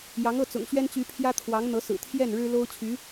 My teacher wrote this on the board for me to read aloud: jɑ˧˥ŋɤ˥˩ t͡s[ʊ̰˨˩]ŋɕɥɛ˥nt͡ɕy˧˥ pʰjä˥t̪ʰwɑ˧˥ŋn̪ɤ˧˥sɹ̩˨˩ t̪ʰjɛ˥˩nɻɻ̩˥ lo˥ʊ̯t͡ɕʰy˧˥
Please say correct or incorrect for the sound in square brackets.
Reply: correct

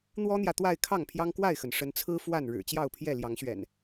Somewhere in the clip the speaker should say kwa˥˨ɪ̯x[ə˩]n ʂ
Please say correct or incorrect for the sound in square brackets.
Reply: correct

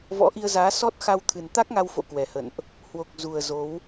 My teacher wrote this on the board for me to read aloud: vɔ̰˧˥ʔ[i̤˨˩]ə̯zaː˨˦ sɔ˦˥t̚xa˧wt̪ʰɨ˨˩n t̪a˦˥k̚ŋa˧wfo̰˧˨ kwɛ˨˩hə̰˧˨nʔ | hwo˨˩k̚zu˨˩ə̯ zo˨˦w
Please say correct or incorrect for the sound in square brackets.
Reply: incorrect: i˧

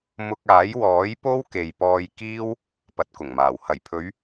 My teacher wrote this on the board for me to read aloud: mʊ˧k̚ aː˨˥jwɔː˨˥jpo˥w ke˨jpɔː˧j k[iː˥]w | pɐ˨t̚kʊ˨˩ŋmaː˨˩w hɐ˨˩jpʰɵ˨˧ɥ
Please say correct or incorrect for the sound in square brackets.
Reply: correct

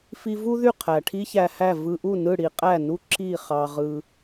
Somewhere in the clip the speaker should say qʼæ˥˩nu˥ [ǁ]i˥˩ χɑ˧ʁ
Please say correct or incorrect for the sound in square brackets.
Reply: correct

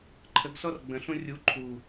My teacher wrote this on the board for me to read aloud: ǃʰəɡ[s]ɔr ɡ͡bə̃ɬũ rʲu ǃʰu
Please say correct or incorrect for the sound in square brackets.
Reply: correct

